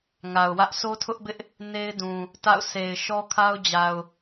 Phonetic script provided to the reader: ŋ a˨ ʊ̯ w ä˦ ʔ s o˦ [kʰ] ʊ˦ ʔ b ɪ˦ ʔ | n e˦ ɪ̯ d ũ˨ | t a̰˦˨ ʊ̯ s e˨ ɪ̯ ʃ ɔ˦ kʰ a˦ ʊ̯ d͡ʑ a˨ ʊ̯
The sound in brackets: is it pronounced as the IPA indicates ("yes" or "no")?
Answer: no